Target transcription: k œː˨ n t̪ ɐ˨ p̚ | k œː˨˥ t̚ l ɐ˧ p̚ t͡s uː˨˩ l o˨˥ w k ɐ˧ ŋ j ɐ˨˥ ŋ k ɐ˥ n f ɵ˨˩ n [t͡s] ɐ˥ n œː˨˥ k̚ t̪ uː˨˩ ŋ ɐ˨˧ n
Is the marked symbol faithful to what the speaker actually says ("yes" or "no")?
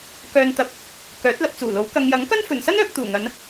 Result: no